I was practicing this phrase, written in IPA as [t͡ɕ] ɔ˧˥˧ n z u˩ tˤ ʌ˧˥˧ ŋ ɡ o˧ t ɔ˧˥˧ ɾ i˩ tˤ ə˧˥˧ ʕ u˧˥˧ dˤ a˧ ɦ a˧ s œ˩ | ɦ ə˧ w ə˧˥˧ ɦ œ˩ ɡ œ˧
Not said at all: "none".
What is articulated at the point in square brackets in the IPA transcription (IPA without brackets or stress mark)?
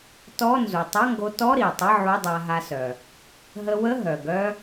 t